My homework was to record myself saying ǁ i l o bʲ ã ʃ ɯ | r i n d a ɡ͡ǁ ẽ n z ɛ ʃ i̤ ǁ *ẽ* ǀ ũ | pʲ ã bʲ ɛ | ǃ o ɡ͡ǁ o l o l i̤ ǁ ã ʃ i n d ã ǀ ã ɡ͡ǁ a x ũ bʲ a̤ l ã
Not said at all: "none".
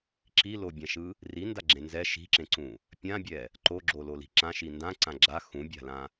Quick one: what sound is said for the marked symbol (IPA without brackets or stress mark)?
ẽ